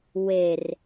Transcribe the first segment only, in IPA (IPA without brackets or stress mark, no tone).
w